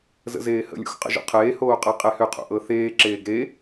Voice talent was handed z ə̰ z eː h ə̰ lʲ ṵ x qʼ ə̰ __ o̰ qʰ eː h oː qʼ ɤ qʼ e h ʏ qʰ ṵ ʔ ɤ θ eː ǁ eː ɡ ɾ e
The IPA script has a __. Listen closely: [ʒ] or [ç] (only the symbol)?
ʒ